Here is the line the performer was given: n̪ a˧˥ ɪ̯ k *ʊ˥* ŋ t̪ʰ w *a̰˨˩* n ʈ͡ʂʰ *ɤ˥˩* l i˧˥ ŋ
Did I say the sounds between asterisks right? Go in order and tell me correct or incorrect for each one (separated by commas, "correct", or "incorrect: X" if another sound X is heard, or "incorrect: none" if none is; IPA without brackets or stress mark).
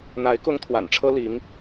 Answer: correct, correct, incorrect: ɤ˥